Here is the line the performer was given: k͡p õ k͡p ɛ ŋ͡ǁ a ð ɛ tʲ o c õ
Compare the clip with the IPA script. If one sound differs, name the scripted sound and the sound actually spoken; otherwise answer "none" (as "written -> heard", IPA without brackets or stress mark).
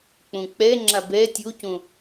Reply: ð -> b